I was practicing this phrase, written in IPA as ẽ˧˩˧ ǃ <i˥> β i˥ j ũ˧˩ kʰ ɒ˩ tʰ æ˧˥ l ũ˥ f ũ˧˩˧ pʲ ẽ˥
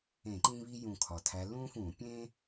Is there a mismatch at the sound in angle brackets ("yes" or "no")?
yes